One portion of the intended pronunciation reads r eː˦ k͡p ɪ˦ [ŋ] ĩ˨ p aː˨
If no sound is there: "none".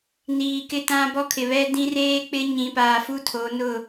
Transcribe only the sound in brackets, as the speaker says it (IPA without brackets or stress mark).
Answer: ɲ